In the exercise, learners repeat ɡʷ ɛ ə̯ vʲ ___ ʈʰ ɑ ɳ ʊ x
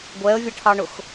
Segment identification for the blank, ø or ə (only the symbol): ə